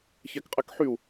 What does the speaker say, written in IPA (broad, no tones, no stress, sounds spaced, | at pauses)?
ç ɛ k qʼ ɛ k ħ y u̯